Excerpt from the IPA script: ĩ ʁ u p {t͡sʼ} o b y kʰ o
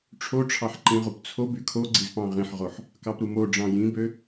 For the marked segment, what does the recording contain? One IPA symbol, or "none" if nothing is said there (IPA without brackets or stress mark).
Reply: t͡sʰ